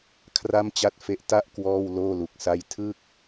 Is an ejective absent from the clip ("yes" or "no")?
yes